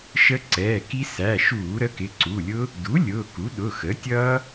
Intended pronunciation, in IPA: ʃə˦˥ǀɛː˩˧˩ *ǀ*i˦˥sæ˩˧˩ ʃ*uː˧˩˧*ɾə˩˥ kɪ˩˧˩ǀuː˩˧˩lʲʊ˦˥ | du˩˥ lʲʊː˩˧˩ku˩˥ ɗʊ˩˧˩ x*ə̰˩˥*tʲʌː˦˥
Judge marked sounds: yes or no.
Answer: no, yes, no

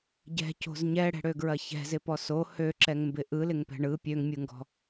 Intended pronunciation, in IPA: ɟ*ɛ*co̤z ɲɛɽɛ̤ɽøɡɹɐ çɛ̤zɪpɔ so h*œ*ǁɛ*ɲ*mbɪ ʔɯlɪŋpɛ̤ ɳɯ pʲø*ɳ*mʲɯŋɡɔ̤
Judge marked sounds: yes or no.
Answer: no, no, no, no

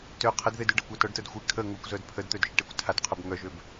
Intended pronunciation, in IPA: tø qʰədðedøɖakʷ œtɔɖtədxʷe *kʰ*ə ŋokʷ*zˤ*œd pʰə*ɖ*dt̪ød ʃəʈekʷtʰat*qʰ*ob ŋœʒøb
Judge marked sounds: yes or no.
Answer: yes, no, no, yes

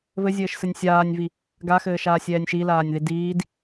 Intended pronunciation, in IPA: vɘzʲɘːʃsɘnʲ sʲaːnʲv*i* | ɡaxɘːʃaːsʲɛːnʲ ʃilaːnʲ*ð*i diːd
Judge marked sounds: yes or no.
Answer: yes, yes

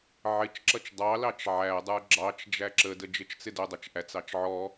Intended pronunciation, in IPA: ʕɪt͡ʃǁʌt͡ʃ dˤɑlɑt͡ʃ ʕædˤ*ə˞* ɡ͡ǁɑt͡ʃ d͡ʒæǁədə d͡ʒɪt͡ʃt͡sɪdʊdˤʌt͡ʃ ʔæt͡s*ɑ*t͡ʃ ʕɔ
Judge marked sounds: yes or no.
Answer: yes, yes

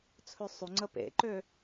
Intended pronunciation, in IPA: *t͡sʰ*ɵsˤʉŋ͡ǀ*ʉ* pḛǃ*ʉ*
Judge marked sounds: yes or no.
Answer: yes, no, no

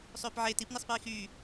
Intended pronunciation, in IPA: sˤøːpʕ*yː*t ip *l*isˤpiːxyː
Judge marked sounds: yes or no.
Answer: no, no

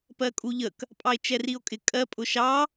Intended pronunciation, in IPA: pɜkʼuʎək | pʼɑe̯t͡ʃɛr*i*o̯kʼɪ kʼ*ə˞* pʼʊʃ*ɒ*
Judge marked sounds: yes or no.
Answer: yes, no, no

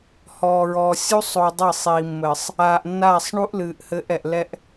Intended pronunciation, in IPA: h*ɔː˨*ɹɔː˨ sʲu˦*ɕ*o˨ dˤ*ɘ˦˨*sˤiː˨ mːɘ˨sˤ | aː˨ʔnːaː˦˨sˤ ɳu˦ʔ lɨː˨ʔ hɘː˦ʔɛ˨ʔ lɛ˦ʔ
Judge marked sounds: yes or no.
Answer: yes, no, yes

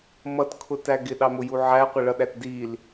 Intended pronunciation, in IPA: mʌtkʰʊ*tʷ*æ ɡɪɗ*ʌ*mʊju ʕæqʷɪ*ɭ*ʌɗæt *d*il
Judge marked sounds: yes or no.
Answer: no, no, yes, yes

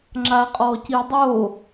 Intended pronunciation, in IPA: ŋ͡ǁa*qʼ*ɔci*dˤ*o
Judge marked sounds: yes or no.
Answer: yes, yes

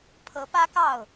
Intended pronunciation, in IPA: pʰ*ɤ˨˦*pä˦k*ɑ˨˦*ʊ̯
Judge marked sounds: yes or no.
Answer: yes, no

